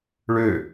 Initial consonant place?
retroflex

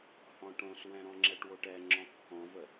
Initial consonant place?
glottal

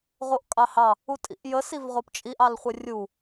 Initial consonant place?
uvular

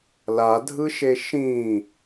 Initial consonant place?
alveolar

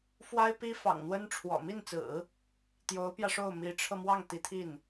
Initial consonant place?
labial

